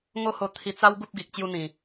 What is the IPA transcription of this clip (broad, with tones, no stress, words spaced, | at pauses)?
ŋo˦ho˧t̪ʰi˧ t͡sa˦w ɡu˦p̚ ɡi˨k̚ t͡ɕju˧n̪ĩ˨˩